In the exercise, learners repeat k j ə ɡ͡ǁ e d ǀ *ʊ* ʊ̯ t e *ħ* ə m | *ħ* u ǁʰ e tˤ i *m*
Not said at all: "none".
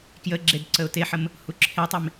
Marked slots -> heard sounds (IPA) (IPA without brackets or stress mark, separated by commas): ə, ħ, h, m